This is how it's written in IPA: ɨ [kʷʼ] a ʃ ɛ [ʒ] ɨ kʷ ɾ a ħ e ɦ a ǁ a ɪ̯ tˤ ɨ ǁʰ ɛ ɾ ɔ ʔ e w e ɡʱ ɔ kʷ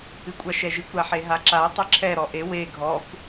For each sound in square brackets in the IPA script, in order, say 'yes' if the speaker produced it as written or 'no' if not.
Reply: yes, yes

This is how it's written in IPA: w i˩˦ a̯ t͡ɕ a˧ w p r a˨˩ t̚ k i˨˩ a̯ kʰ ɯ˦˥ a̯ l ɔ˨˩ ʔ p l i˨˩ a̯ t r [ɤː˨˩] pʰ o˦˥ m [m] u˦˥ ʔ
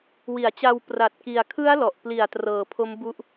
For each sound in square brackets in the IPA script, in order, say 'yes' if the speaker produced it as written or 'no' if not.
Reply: yes, no

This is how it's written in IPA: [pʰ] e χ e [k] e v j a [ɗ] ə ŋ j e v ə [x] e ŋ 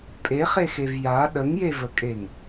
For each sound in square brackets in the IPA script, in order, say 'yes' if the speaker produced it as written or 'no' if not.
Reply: no, no, yes, no

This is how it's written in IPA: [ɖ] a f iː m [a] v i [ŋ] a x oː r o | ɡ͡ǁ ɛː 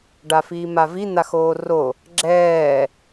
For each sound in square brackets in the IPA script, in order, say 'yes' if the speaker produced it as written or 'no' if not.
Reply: yes, yes, no

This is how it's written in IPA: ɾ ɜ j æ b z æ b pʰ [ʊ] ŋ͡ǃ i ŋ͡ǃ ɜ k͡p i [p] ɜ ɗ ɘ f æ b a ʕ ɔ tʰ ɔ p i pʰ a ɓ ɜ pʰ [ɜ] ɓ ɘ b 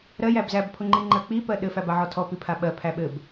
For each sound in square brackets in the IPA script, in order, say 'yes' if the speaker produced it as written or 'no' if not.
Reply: yes, yes, no

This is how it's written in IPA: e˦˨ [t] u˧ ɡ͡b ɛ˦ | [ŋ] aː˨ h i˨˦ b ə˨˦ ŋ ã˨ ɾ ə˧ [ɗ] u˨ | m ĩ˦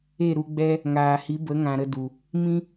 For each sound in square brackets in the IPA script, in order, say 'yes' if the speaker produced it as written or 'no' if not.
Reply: no, yes, no

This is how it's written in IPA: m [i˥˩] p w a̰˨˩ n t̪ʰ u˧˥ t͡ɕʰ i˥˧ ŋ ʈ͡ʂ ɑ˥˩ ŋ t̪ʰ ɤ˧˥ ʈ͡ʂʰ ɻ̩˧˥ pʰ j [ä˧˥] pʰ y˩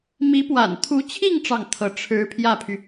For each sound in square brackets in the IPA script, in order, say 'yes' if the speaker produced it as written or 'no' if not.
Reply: no, no

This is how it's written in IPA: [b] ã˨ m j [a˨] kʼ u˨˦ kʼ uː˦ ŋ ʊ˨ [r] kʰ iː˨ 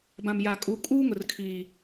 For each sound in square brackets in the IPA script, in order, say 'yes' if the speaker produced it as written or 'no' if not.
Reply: yes, yes, yes

